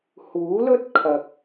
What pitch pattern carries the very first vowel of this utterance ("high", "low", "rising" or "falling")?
rising